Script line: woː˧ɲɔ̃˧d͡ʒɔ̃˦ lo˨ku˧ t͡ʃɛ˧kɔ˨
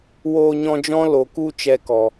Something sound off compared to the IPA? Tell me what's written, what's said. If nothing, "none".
none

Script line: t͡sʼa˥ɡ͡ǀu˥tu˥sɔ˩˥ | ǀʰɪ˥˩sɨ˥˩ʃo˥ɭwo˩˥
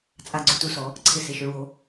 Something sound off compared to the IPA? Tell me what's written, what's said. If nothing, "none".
ɨ˥˩ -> ɪ˥˩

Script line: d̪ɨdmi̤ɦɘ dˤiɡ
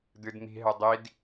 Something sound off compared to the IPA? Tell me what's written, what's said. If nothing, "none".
ɡ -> d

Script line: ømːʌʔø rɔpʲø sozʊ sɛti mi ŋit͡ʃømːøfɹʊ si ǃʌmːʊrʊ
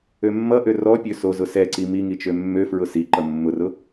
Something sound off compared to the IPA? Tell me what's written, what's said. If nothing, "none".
t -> ǀ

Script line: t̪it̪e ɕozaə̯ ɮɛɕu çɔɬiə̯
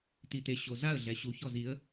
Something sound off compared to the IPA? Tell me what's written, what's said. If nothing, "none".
ɬ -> z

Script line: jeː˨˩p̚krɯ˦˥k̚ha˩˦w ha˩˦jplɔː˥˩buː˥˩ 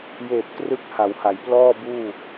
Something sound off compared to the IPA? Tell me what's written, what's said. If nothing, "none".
none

